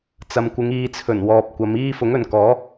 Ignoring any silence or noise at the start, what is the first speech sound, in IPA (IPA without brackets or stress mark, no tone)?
t͡s